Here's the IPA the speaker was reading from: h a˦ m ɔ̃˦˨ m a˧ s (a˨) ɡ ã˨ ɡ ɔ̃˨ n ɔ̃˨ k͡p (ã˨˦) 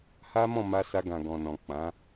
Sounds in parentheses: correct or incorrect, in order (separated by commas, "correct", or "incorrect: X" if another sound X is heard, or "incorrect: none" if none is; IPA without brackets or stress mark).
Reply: incorrect: a˧, correct